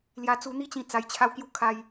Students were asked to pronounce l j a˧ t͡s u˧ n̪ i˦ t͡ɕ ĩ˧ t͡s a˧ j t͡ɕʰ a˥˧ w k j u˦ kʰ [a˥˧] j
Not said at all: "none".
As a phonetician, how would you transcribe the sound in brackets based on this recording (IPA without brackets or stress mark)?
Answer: a˧